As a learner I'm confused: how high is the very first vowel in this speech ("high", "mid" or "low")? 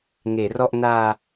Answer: mid